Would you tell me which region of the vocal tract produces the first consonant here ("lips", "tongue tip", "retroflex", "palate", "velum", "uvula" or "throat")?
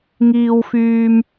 velum